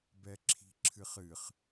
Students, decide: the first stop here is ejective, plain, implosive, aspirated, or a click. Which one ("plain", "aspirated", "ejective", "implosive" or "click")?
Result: plain